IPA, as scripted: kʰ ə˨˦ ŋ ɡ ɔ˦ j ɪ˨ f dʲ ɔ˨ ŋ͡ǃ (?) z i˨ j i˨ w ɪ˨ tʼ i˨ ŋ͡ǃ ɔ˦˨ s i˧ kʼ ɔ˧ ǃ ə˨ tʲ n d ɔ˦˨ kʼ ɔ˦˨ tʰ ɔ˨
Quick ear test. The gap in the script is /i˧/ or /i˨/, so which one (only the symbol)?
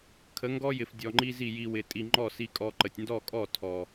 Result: i˧